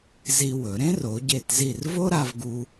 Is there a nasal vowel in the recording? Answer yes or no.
yes